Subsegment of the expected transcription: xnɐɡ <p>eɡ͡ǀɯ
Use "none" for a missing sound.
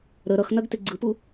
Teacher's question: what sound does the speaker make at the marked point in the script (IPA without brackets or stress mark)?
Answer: t